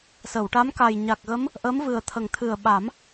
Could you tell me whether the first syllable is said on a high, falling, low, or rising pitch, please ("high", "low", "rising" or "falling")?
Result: low